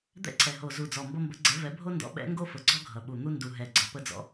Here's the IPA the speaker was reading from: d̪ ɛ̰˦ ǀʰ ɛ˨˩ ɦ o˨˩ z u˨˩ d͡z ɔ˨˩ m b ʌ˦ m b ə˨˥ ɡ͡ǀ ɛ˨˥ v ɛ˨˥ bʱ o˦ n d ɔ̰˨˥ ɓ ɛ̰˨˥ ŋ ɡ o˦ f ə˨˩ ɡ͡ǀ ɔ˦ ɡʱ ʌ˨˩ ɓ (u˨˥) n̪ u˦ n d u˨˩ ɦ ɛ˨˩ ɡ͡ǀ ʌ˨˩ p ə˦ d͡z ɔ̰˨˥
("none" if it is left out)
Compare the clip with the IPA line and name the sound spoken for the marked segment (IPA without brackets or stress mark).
u˨˩